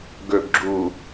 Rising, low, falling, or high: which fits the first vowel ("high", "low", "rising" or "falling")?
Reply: low